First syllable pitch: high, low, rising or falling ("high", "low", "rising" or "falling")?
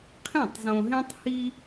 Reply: falling